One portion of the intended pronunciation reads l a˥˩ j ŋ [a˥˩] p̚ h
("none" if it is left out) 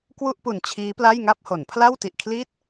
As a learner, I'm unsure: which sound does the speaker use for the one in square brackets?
a˥˩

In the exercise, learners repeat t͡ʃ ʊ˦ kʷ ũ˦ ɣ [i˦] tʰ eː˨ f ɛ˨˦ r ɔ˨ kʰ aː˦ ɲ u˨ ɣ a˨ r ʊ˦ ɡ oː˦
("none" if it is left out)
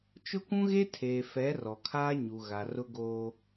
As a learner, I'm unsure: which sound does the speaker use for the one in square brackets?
e˦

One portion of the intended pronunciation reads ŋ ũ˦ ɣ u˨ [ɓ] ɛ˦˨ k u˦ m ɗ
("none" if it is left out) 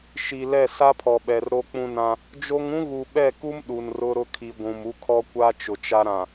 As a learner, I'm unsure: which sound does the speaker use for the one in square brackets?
ɓ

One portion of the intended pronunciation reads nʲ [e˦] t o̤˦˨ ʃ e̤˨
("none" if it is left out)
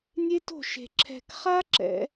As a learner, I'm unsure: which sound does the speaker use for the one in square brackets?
e˦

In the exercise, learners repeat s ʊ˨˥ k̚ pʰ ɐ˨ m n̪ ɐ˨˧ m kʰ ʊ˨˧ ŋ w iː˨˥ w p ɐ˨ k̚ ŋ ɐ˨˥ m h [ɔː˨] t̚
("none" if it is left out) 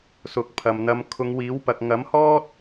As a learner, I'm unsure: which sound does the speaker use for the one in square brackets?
ɔː˥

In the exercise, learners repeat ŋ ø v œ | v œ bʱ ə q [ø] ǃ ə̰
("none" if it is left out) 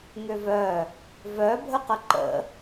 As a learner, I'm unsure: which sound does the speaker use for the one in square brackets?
ə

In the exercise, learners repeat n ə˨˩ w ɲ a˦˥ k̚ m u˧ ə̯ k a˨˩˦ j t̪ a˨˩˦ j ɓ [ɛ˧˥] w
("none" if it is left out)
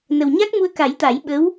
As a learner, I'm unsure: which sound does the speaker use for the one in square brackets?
ə˧˥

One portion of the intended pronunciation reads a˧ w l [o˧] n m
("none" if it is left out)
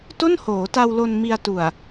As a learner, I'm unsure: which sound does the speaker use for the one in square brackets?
o˧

